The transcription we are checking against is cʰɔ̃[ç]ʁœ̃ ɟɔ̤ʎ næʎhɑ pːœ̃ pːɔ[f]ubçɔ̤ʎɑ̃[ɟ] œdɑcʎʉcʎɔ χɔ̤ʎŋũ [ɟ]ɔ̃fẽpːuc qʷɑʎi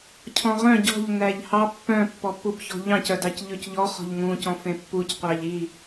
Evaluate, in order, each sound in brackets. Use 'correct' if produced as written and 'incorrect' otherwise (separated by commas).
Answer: incorrect, incorrect, incorrect, incorrect